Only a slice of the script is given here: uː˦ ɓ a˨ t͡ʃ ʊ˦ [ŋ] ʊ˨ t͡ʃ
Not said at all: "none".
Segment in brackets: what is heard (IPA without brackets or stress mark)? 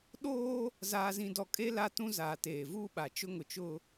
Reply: ŋ